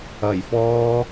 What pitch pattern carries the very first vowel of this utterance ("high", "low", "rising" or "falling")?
low